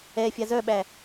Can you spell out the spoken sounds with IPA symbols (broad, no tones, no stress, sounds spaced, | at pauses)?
ɛ fʲ a z œ ɓ æ